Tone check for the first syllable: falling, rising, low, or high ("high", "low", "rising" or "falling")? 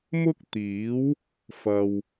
high